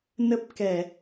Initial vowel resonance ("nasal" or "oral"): oral